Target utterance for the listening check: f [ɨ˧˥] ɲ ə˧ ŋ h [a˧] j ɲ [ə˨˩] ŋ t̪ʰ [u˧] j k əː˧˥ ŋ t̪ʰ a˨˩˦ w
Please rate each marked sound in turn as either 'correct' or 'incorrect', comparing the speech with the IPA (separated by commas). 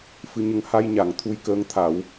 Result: correct, correct, incorrect, correct